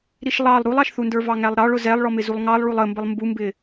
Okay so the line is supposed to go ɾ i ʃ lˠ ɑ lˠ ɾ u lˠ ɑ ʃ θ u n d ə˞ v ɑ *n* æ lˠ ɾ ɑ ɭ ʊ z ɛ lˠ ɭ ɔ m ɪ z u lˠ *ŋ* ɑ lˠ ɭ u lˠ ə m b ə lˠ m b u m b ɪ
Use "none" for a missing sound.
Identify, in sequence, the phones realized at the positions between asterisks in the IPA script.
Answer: ŋ, ŋ

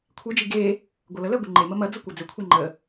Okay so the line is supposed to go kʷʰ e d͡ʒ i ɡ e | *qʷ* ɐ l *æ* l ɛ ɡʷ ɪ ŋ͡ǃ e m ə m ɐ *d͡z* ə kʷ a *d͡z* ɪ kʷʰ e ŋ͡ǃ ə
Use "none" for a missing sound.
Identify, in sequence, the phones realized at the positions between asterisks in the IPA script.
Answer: ɡʷ, ə, d͡z, d͡z

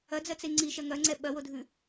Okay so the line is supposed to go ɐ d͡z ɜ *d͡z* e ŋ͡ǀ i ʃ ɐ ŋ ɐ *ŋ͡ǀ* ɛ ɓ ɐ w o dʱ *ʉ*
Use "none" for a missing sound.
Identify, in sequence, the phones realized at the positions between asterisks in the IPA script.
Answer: t͡s, ŋ͡ǀ, ʉ

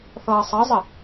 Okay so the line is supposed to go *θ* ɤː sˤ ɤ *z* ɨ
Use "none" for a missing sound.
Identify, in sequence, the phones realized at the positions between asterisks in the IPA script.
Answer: θ, zˤ

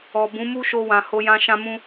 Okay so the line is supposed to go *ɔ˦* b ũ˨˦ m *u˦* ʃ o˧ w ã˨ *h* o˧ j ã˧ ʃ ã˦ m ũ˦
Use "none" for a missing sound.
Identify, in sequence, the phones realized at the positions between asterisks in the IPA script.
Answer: ɔ˨, u˦, h

